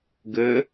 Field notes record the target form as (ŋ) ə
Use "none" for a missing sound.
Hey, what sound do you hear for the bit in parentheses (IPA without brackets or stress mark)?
ɡ